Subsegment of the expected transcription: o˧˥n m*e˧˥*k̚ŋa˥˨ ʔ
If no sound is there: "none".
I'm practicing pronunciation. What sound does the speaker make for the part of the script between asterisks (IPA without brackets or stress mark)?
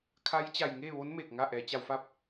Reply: e˧˩